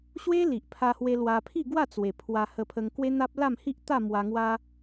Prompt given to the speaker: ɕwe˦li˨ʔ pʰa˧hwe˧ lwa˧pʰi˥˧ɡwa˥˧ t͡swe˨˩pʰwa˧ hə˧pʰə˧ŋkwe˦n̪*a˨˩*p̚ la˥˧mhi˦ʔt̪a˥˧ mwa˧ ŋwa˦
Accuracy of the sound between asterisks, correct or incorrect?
incorrect